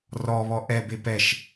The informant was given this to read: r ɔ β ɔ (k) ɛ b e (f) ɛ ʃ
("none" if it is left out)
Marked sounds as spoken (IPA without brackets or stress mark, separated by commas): ʔ, p